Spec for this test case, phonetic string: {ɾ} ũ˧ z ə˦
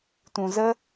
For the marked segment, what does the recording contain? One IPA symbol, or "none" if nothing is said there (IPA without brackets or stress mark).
t